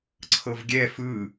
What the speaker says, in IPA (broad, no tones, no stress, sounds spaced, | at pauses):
ǀʰ ɤ v ɡʲ ɛ f ɯ